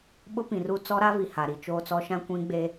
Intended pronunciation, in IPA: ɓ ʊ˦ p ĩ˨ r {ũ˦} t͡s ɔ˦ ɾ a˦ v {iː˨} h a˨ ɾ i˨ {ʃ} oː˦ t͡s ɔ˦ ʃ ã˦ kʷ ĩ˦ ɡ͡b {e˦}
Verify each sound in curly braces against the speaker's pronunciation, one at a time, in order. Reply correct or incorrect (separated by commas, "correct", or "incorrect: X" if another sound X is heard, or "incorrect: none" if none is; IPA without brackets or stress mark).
incorrect: u˦, incorrect: i˨, incorrect: t͡ʃ, correct